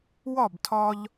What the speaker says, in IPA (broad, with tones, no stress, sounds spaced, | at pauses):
w ɒ˥˨ b tʰ ɒ˧ ʎ